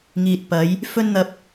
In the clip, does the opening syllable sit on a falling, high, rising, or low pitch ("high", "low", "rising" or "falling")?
low